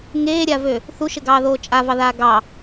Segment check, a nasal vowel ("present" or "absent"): absent